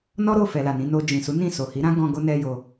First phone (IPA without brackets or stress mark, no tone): n